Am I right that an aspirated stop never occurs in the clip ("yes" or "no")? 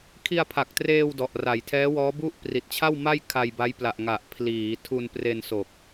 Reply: no